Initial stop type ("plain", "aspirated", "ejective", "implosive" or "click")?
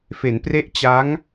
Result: plain